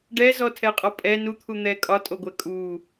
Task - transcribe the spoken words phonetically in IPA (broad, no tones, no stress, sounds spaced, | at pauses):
ɖ ɛ z ɔ tʰ ɛ qʼ ɔ pʼ ɛ n u t̪ʰ u n̪ ɛ kʼ ɒ tʼ o ɡʷ ɛ kʼ u